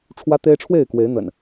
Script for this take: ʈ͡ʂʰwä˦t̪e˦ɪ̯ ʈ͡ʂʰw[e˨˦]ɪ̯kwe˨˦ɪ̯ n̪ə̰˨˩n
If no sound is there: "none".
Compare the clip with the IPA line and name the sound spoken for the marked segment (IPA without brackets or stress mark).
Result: e˥˨